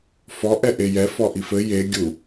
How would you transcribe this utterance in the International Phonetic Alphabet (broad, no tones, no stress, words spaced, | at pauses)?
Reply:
fɔ ʔɛʔejɛ fɔʔifɘ je ɡʲu